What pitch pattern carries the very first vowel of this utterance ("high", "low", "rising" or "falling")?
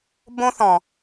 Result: high